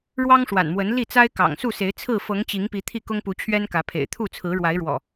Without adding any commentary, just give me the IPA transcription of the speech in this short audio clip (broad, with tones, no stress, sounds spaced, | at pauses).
ɻ w ɑ˦ ŋ ʂ w a̰˨˩ n m w ə˨˦ n l i˥˨ t͡s a˦ ɪ̯ k ɑ̰˨˩ ŋ s u˥˨ s e˨˦ ɪ̯ t͡sʰ ɹ̩˥˨ f ɤ˨˦ ŋ t͡ɕ i˨˦ ŋ p i˨˦ t̪ʰ i˥˨ k ʊ˦ ŋ p u˨˦ t͡ɕʰ ɥ ɛ˦ n k ä˨˦ pʰ ḛ˨˩ ɪ̯ t̪ʰ u˥˨ t͡sʰ ɹ̩˨˦ ɻ w a˨˦ ɪ̯ ɻ w ɔ̰˨˩